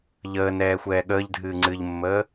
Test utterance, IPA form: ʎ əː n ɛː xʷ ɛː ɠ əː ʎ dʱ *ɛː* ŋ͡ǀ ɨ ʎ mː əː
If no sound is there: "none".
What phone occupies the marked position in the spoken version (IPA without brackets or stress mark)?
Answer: ɨː